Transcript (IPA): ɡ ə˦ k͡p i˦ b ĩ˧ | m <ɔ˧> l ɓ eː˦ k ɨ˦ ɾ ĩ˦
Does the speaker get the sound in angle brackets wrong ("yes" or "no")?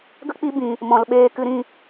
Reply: yes